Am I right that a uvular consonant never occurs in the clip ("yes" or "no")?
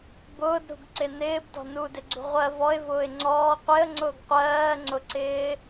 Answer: no